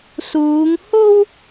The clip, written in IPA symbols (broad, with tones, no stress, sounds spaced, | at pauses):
s uː˨˧ ŋ h o˧ w